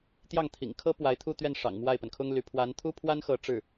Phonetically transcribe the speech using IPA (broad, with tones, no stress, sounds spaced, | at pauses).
t̪ j ɑ˥˩ ŋ t̪ʰ ḭ˨˩ ŋ kʰ ɤ˥ p w a˧˥ ɪ̯ t̪ʰ u˥˧ t̪ ɥ ɛ˥˩ n ʂ ɑ̰˨˩ ŋ m w a˥˩ ɪ̯ p ə˩ n kʰ ʊ˥ ŋ l y˧˥ pʰ w a˧˥ n t̪ʰ u˥ pʰ w a˥ n x ɤ˧˥ ʈ͡ʂ ɻ̩˥˩